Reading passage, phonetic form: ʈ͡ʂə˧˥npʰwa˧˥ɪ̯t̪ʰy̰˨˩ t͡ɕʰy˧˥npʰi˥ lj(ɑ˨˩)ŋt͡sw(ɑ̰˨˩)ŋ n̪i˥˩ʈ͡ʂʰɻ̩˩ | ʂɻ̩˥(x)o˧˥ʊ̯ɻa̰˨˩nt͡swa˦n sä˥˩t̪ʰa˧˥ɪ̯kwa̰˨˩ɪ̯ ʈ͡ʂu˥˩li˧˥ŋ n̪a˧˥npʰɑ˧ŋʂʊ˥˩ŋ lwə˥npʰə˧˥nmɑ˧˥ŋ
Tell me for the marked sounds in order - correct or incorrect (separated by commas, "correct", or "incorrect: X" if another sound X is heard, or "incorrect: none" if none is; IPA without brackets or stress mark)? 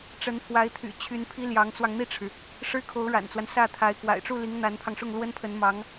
incorrect: ɑ˧˥, incorrect: ɑ˧, incorrect: kʰ